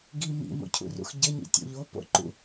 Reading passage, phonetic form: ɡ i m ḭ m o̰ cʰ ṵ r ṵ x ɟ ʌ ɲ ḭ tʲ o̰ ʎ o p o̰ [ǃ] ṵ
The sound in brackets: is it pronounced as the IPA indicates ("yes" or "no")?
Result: yes